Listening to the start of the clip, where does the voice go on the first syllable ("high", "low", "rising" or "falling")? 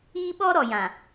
high